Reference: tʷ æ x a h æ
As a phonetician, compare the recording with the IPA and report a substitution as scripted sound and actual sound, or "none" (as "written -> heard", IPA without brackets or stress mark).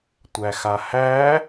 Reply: none